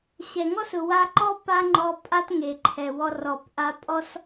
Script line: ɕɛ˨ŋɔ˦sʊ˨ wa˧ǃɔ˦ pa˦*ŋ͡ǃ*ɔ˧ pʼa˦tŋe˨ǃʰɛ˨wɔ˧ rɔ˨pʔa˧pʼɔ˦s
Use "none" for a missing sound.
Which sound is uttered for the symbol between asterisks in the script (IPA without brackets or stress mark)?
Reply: ŋ͡ǃ